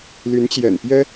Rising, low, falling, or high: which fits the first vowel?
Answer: rising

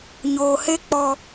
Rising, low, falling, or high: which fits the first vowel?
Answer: low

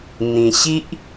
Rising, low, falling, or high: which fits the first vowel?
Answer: low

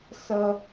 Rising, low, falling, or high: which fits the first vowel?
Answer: high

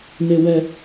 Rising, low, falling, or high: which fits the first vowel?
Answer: low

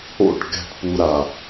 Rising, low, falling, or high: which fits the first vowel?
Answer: falling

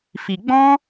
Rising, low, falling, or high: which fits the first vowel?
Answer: low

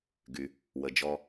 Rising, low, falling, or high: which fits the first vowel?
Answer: low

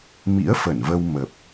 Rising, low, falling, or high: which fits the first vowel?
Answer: rising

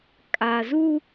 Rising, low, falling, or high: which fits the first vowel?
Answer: low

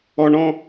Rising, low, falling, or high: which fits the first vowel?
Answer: low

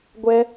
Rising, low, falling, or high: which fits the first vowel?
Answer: high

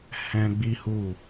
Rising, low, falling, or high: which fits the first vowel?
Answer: high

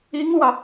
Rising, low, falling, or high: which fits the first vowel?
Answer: high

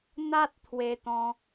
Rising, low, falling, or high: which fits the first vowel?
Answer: high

